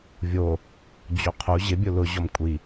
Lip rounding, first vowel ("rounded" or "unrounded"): rounded